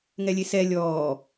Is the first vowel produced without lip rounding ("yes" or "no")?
yes